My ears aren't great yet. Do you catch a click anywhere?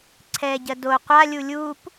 yes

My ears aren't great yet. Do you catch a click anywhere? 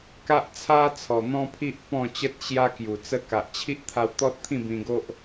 no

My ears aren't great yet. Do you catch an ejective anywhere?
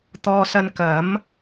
no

